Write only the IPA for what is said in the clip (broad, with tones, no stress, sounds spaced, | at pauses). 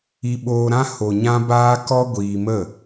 i˧ ɓ oː˧ ɾ ã˦ h o˨ ɲ ã˦ b aː˦ k ɔ˦ ɡʷ iː˧ m ə˦˨